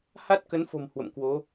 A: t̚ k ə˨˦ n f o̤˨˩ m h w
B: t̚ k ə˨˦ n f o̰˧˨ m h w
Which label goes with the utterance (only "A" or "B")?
A